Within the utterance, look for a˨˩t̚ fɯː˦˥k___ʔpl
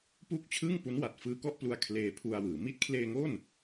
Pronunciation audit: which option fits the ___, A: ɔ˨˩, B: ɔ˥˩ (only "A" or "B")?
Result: B